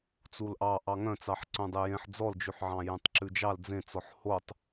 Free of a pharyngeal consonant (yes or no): no